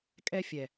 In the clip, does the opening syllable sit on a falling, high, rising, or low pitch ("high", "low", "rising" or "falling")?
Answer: high